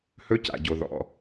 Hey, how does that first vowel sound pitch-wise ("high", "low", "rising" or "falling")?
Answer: high